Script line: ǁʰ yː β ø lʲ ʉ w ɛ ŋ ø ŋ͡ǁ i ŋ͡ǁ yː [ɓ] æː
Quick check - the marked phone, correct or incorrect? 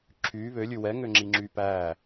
incorrect